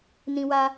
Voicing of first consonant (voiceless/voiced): voiced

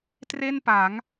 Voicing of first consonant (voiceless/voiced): voiceless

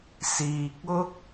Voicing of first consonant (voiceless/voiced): voiceless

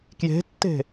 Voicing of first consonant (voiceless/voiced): voiceless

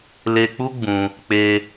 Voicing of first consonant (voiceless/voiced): voiced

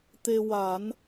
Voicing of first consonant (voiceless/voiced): voiceless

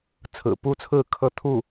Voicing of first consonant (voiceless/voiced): voiceless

